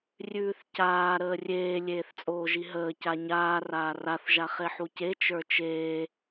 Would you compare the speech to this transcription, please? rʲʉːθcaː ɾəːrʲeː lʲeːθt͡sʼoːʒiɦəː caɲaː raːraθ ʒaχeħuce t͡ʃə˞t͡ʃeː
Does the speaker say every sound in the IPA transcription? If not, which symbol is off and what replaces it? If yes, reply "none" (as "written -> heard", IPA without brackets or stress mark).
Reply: none